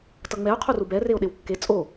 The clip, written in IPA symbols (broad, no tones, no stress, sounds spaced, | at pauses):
t ʌ ŋ͡m ɛ o̯ qʰ o r u b ɛ r e o̯ ɗ e w kː e t͡sʼ o